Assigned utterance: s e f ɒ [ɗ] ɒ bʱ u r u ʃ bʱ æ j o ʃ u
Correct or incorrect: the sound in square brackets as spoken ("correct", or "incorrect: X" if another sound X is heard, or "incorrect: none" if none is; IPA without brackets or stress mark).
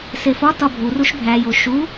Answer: incorrect: t